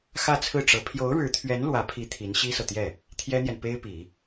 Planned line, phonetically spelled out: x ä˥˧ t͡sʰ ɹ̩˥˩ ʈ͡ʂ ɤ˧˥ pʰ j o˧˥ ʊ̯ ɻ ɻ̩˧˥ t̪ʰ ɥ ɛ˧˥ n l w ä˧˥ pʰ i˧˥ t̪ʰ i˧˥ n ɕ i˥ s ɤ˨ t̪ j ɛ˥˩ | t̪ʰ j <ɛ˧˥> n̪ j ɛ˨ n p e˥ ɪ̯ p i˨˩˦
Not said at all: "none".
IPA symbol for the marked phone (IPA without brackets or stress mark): ɛ˥